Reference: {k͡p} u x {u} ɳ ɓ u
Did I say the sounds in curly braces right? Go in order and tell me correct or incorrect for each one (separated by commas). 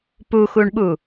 incorrect, correct